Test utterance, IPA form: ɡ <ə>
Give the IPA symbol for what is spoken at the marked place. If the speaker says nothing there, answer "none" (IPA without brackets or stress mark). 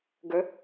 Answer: ə